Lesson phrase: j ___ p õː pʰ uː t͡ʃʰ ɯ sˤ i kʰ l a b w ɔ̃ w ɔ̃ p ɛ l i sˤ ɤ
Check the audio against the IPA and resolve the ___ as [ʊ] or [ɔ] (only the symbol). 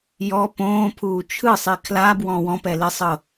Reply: ɔ